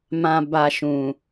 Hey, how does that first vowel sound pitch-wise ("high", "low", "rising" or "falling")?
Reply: low